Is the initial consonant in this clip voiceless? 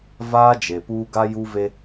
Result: no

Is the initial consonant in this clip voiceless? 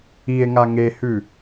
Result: no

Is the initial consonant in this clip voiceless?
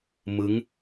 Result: no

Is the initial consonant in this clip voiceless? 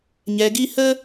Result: no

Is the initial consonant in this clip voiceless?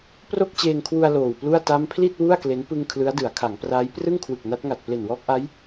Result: yes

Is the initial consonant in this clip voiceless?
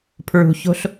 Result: yes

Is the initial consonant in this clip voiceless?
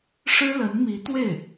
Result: yes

